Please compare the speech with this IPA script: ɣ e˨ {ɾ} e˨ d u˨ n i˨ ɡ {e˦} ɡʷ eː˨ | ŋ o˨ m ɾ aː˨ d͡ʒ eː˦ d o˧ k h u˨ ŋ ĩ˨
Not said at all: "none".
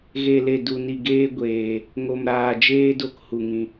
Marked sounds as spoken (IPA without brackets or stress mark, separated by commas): l, eː˦